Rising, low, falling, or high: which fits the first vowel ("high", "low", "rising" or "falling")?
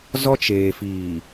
high